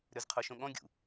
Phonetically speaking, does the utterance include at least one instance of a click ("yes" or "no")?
no